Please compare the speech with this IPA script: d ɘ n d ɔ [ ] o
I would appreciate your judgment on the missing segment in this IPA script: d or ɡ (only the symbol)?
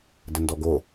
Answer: ɡ